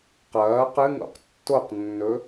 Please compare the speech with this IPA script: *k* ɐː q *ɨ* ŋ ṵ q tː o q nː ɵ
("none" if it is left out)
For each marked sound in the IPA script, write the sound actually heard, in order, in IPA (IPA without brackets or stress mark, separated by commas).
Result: q, ɨ